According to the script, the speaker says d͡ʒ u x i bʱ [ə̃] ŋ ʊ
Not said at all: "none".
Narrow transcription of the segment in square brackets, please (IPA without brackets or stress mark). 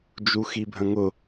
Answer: ə̃